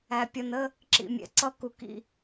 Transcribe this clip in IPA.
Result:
æ˨pʲʌ˨nə˦ | ǁḭ˨mʲɛ̰˨ǀʌ˦ ku˨kḭ˨

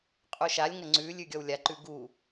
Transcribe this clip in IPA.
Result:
qʼuʃalʲŋɐ ŋ͡ǀʉlʲʉ ɡʲɔwlʲaǃʉ ɡu

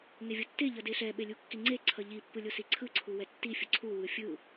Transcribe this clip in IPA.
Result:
ŋevʲotːe ʎʌdeɬɛ ɓelʲukːiŋ͡ǀe ǀʰʌʎi pːɯlʲosiǀʰɯ ǀʰuwɛtːi fʲʌǀʰu wɯfʲɯ

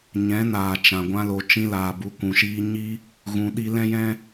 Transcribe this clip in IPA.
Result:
ɲɛ̃˨˦naː˨t͡ʃã˨ ɡʷã˧lo˨t͡ʃĩ˧ laː˨bu˧kʷũ˨ʃiː˦ ɲi˦ | ɣũ˧ɗi˦ lɛ̃˦jɛ̃˦

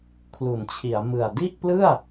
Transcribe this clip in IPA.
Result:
kʰlu˩˦nt͡ɕʰi˩˦a̯mɯ˨˩a̯ di˥˩ʔplɯ˥˩a̯

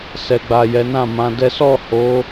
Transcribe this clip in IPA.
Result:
sɛ˨ɡ͡ba˨ jɛ˨˦nã˦˨mã˧dɛ˦ sɔ˦˨ho˨˦

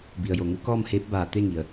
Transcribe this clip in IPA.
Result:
bi˩ə̯jo˩ŋu˧˥ kɔː˥˨mheː˧˥p̚baː˧˩ t̪e˥˨ŋi˩ə̯

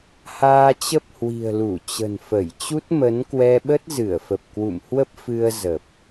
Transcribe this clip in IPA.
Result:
haː˧t͡ɕə˦˥p̚hwi̤˨˩ə̯ lu˧˩t͡ɕə̤˨˩nfə˧˩j t͡ɕu˦˥t̚mə˨˦nkwɛ˧ɓə˦˥t̚ zɨ˧˩ə̯fə˨˩p̚kwṵ˧˨mhwə˦˥p̚ fɨ˧ə̯ zə˨˩p̚

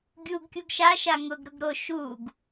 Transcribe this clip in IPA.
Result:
ɡʲuɡkʲuɡ ʃaʃa ŋʊɡɾʊɡ ɾo ʃuɡ

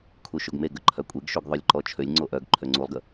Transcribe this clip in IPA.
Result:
kʰuʃoɡmeɡə ǃʰœkʷʼeɡʃuɡ ðˤølʲǃɔt͡ʃʰølʲŋ͡ǀo ʔœɡ ǃʰøŋ͡ǀulˠɡə

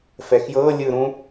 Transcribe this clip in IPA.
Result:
fɛxjɤ lʲɯɾũ

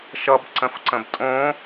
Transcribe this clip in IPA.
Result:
ʃʌbǀə̃fǀə̃b tʼõ

